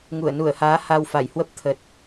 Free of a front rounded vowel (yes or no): yes